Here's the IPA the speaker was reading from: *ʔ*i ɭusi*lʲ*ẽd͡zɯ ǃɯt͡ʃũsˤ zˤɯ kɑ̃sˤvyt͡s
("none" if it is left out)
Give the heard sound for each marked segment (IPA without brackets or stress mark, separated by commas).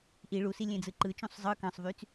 ʔ, lʲ